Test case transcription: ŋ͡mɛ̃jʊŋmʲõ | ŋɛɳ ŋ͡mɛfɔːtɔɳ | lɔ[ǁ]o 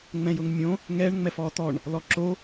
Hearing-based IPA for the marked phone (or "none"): ǁ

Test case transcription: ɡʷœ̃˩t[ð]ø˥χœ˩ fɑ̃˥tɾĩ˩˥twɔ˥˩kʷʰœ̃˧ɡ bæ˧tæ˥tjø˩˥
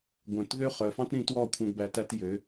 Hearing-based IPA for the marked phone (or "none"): ð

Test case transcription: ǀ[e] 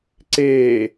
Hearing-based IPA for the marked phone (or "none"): e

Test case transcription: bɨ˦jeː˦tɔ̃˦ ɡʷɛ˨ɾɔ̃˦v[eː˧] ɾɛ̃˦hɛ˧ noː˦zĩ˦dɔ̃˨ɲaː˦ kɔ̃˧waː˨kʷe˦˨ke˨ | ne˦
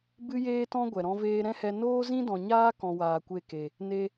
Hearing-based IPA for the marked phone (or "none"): eː˦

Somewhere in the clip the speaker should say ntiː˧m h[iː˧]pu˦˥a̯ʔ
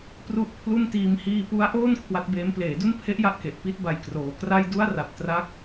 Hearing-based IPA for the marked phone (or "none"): iː˧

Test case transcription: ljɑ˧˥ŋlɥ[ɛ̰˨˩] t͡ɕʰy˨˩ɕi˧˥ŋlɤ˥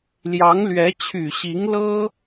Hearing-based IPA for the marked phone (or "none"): ɛ˧˥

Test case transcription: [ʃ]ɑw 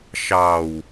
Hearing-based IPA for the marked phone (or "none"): ʃ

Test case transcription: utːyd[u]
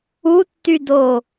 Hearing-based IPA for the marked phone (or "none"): o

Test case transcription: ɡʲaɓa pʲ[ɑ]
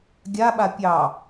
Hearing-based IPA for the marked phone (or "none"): ɑ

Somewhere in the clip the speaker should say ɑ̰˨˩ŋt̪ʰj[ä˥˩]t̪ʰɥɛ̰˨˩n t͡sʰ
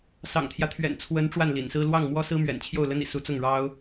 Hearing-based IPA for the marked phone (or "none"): ä˦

